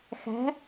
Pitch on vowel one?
rising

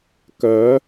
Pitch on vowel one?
rising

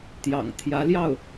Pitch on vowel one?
low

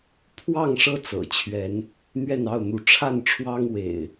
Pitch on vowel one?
falling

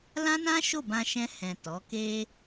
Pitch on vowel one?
high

